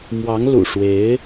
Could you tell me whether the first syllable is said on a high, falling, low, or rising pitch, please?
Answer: rising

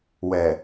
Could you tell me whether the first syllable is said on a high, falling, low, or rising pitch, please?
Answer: low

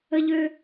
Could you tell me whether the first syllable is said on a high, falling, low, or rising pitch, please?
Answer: high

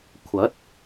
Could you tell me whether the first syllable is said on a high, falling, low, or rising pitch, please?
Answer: rising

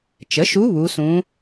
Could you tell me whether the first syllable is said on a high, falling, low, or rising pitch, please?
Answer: rising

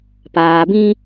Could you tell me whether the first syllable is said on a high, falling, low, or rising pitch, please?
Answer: low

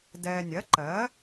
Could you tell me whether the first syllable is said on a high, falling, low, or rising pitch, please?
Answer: low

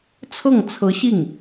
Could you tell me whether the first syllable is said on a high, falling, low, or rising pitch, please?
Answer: falling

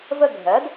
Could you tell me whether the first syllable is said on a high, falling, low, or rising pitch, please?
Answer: falling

